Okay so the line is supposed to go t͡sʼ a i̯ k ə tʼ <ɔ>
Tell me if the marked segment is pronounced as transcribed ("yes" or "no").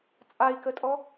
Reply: yes